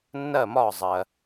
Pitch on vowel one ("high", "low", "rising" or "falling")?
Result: falling